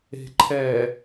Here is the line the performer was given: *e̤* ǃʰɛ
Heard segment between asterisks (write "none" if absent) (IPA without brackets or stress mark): e̤